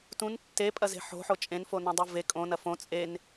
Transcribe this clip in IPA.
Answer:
t ũ n tː e pʼ ɐ z e̤ ħ o̤ ħ o t͡ʃʼ ẽ n f o n õ dˤ u v e kʼ õ n ɐ f õ t͡sʼ e n

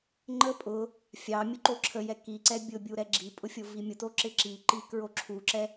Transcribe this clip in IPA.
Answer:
ŋ͡ǃ ə pʼ ʊ | fʲ ɑ mʲ ʊ ǃ o ǁʰ ə j ɛ k i ǀ ɛ bʲ ʊ bʲ u ɾ ɛ ɡ͡ǁ i pʼ ʊ fʲ o v i mʲ ʊ t o ǁ ɪ ǁ i ǃ i k ɹ o ǁʰ u ǁ ɛ

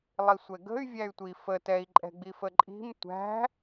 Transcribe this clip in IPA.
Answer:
lˠ i sʷ ɛ ɡ ə̤ y̯ vʲ æ y̯ tʷ i f ə t ɛ i̯ ǃʼ ɛ̤ ɡ͡b i f ə ǃʼ i̤ m tʷ æ̤

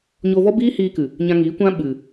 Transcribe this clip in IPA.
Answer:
ɲ oː˧ v ɔ˦ b iː˦ h iː˧ k ɨ˨ | ɲ ã˧ ŋ iː˨˦ kʷ ã˦ ɓ ɨ˨

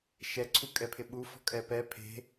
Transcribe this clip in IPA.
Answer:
ʃ ɛ ǀʰ u kʼ ɛ pʰ ɪ ɓ u f ɔ̤ kʼ ɛ p ɛ pʰ e̤

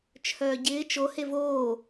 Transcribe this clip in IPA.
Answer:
t͡ʃʰ œː ɟ ɪː t͡ʃ o h e v oː

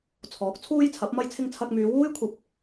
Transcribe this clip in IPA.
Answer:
t͡sʰ ɔː˨˥ k̚ t͡sʰ uː˥ j t͡sʰ ɐ˨˥ p̚ m ɐ˥ j t͡sʰ ɪ˥ ŋ t͡sʰ ɐ˧ k̚ m yː˨˧ w uː˥ j kʷʰ ɐ˨ p̚

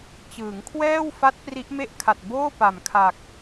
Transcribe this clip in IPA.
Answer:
t͡ɕ ɯː˩˦ ŋ kʰ w ɛː˥˩ w f a˦˥ t̚ p r i˦˥ ʔ m e˥˩ ʔ kʰ a˨˩ t̚ b oː˥˩ p a˨˩ m kʰ a˨˩ k̚

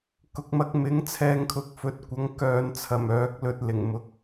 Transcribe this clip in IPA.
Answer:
k ʊ˨ k̚ m ɐ˧ k̚ m ɪ˨˥ ŋ t͡sʰ ɛː˧ ŋ kʰ ʊ˨ k̚ f ɵ˨˥ t̚ kʷ ɐ˨˥ ŋ k œː˨ n t͡sʰ ɐ˨˩ m œː˨˥ k̚ l ɵ˧ t̚ l ɪ˨˩ ŋ m ʊ˨ k̚

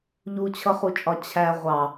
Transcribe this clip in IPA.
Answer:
ʎ u t͡ɕʰ ʌ χ u t͡ʃʼ ɒ t͡ɕʰ æ ʁʷ ɑ

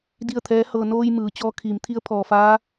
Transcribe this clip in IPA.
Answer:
d i˥˨ ə̯ t̪ʰ ɛː˧˥ h ɤː˧ n oː˧ j m ɯː˩˧ t͡ɕ ɔː˧˥ kʰ iː˩˧ m t̪ʰ i˧˥ ə̯ pʰ ɔː˩ f aː˧˥

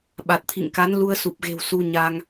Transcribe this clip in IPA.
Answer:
ɓ a˨˩ t̚ t̪ʰ ḭ˧˨ ŋ k a˨˦ n l u˧ ə̯ s u˨˩ p̚ ɣ e̤˨˩ w s u˧ ɲ a˧ ŋ

